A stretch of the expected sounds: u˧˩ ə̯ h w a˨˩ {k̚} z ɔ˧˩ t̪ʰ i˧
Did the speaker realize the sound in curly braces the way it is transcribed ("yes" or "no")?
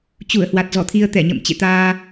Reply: no